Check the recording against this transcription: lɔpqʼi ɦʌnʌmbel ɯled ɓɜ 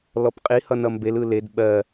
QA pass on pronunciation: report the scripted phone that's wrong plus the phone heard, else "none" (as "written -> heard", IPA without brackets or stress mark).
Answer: ɦ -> h